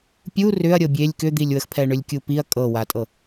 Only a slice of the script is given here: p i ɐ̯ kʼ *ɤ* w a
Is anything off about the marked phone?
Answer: no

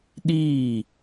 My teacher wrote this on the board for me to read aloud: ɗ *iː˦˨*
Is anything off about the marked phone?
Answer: no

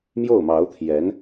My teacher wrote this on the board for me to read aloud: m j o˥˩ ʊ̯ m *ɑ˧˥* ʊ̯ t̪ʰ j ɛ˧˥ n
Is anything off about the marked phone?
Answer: no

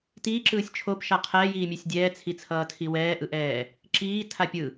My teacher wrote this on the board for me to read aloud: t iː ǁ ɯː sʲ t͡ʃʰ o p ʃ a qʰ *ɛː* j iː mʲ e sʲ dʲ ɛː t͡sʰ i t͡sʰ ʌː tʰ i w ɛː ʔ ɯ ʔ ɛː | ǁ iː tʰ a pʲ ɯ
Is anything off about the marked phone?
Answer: no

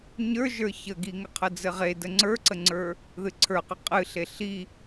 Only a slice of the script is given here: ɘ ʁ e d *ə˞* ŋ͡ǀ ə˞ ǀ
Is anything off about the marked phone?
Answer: yes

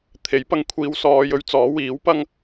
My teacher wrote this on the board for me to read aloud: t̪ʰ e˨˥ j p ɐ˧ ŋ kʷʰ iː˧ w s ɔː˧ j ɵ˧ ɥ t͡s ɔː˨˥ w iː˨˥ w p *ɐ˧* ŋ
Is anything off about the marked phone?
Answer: yes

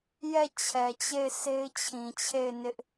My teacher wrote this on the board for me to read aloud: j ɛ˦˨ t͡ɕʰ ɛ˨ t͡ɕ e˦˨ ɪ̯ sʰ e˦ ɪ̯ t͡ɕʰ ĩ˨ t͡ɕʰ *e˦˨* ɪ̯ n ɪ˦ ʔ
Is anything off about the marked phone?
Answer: no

